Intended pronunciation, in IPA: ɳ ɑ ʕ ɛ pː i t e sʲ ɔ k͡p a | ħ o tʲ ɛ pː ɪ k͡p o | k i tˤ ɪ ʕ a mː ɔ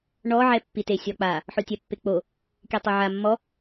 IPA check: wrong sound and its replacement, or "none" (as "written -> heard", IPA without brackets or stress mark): ɑ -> ɔ